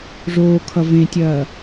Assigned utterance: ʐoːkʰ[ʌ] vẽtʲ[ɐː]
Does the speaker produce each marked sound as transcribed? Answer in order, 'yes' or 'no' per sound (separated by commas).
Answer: yes, yes